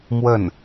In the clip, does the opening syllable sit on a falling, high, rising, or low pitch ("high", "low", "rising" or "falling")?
falling